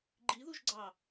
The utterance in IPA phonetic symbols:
ɡ͡ǃiðuʒɡ͡ǀɑ

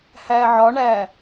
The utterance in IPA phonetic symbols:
hæʕɒɳæ

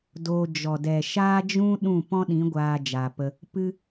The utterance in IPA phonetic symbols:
doː˧ d͡ʒɔ˨dɛ˨ʃaː˦d͡ʒũ˦ ɗũ˦˨ pɔ̃˦ɗĩ˨˦ ɡʷaː˧d͡ʒaː˨pə˧ | pɨ˦

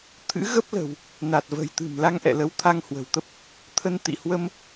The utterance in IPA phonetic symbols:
t̪ʰɨ̰˧˥ɣə˦˥p̚lə̤˨˩w | na˨˩t̚və̤˨˩j t̪ɨ̤˨˩m la˧ŋʔɛ̰˧˨lə˨˦w t̪ʰa˧ŋhwə̤˨˩wt̪ə˦˥p̚ | t̪ʰə˧nt̪ḭ˧˨hwə˧m

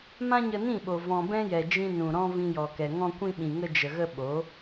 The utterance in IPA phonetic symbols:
mã˦ɲə˧nĩ˦˨ɓo˨ vɔ̃˨ bɛ̃˦jɛ˨d͡ʒĩ˧ nũ˨ɾɔ̃˧ vĩ˧jɔ˨kɛ˨ ŋɔ̃˧kʷĩ˧ɓĩ˨ ŋə˧d͡ʒə˨ɣə˧ ɓo˨˦

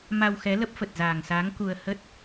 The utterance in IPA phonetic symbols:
ma˧wxɛ˨˦ lə˦˥p̚fə˨˩t̚zaː˨˩ŋsaː˨˦ŋ ku˧ə̯ hə˦˥t̚

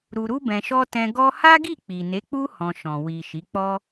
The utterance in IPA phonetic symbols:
ɾu˧ɾu˦bɛ̃˧ʃɔ˦ tɛ̃˧ ɡɔ˦ ha˦ɡi˦˨ k͡pi˨ne˨˦k͡pu˦ hɔ̃˧ʃɔ̃˨ wi˨ ʃi˨˦k͡pɔ˦

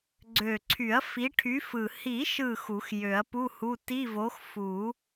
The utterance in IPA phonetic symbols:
ɡ͡ǀø˨˩ǀʰy˨˩˦ɐ̯ fi˨˥ʈʰy˨˥fɯ˨˩ hi˨˩˦ʃɯ˨˩ xu˨˩˦xjø˨˩˦ɐ̯pu˧˥˧hu˧˥˧ ti˧˥˧vo˨˥x fu˨˩˦

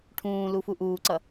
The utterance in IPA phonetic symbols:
ʈʰũː lufuʔuːǀʌ

